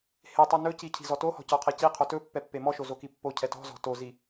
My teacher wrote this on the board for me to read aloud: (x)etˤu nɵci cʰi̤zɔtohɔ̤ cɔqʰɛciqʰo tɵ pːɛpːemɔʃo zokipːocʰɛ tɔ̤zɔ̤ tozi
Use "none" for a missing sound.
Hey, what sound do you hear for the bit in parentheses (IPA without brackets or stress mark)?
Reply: h